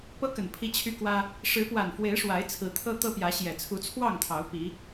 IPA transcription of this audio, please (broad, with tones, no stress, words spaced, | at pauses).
pɤ˦kə˨˩n pʰi˦t͡ɕʰy˦kwä˦ | ʂɻ̩˨˦pwa˨˩nfwe˨˦ɪ̯ ʂwa˨˦ɪ̯t͡sʰɹ̩˨˦ t̪ʰɤ˦t̪ɤ˦ pjä˨˦ɕjɛ˨˩ t͡sʰu˨˦t͡sʰwɑ˥˨ŋ t̪ʰɑ˨˦ʊ̯ pi˨˦